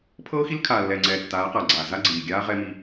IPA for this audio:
pʰɤː˦xi˦l kʰaː˨lːɛː˨ŋ͡ǀɛː˨ tːaː˨˦qa˨ɡ͡ǀaː˨ za˦ɡ͡ǀiː˨ɡʲaː˦ ʁɛ˦mi˦

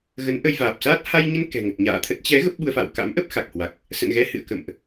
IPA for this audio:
ɣə˨˦nʔə˧jvaː˨˩p̚saː˦˥t̚ ha˧jɲə˧n kɛ̤˨˩ŋə˨˩t̚ɲa̰ː˧˨t̪ʰə˦˥t̚ t͡ɕɛ˨˦ ɣə˦˥p̚ɓu˧ə̯fa̰ː˧˨w ka̰˧˥mʔə˦˥p̚ xa˨˩k̚hwa˨˩k̚ | sə̰˧˨nɣɛ˨˦hɨ̰˧˨ə̯ kə̰˧˨mʔ

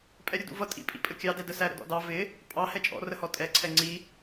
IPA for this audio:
pʼɛɾʲʊdṵvʌ tʼḭpʼḭpʼə kʲɑdɛdə sæɾə̰dɔ̰dɑ vɪ | pʼɑ hɛt͡ʃʼɔ̰rəhɔ tʼɛǀʰɛ ŋ͡ǀi

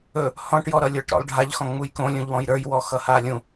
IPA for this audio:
ɵ | hɔ̃ʈjɔɾʌlʲə˞ʈ ɾɔ̰lˠɖʱaʎxɔ̃ ŋ͡mujkõ lʲũʎwɔ̃jɾə˞j wɔxʌhalʲũ

